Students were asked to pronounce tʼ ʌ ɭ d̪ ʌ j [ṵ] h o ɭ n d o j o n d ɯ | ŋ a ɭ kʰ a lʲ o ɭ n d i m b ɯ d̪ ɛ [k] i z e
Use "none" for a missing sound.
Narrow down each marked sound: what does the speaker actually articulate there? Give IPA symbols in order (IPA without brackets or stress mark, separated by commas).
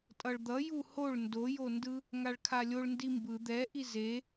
u, ʔ